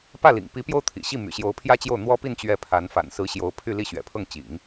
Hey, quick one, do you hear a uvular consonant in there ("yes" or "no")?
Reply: no